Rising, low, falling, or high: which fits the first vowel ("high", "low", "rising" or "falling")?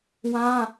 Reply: high